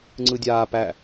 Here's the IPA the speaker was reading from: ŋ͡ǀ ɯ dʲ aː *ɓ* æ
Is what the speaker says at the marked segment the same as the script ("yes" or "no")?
no